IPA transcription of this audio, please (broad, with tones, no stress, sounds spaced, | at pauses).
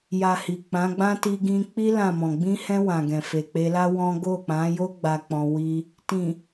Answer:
j a˨ h i˨ k͡p ã˨˦ ɡ͡b ã˦ t i˧ ɡ ĩ˧ k͡p i˦ l ã˦˨ m ɔ̃˨ ɡ͡b ĩ˧ h ɛ̃˧ w ã˨ ɡ ɛ̃˨ f e˨ k͡p e˧ l a˦ w ɔ̃˦ ɡ o˦˨ k͡p ã˨˦ j o˦ ɡ͡b a˧ k͡p ɔ̃˧ w i˦ | t ĩ˨